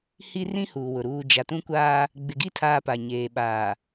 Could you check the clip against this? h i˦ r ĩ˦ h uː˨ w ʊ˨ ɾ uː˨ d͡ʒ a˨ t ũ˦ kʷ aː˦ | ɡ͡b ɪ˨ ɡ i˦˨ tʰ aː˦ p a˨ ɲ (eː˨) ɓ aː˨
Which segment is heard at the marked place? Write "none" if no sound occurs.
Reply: eː˨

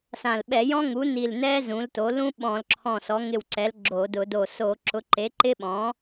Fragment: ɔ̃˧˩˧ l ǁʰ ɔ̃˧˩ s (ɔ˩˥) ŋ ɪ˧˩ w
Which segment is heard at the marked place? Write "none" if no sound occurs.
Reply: ɔ˩˥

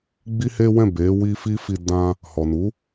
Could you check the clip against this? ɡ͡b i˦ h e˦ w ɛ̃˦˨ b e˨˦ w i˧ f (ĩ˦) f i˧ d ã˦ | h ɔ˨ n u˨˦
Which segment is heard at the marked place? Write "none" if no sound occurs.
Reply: i˦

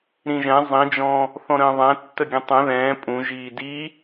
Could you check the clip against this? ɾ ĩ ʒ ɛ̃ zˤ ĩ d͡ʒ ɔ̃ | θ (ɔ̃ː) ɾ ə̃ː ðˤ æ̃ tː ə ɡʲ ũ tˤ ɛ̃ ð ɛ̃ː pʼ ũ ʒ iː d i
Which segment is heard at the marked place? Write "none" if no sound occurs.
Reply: ɔ̃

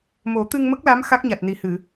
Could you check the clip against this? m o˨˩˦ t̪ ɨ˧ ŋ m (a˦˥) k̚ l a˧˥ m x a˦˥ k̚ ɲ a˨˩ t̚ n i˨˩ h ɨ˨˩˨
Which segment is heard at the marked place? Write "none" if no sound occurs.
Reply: ə˦˥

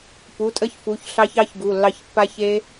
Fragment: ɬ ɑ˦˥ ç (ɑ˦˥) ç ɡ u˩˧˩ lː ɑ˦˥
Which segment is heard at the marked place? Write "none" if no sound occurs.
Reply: ɑ˦˥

